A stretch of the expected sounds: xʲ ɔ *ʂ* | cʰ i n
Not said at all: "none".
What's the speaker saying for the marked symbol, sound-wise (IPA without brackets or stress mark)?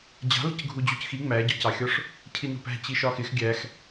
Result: ʂ